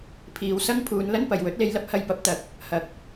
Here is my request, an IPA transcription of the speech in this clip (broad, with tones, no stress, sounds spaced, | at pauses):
pʰ iː˨ w s ɐ˥ ŋ pʰ uː˨˧ n l ɐ˥ n p ɐ˨ j w ɵ˨˥ t̚ l e˧ j l ɐ˥ p̚ h ɐ˧ j p ɐ˨˥ p̚ t̪ ɐ˨˥ k̚ | h ɐ˨ k̚